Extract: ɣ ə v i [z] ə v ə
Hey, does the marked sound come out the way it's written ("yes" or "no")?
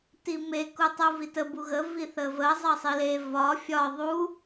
no